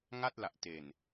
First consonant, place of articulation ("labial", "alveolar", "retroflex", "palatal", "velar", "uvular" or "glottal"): velar